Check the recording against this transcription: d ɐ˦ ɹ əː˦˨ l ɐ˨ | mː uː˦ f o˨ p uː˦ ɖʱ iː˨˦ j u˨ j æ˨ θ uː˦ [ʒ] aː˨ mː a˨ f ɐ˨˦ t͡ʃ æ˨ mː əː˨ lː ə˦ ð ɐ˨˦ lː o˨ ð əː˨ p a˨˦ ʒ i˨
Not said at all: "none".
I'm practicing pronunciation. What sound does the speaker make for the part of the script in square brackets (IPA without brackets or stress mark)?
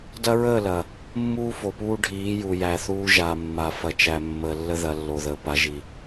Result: ʒ